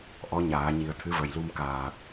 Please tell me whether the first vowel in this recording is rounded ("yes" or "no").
yes